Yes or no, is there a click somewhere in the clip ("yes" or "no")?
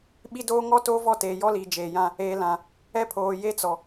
no